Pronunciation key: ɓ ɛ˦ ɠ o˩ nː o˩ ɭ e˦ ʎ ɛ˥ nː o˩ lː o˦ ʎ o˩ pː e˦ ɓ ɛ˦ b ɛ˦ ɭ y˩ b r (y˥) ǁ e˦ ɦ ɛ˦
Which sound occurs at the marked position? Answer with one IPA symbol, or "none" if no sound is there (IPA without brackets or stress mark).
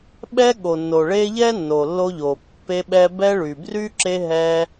y˥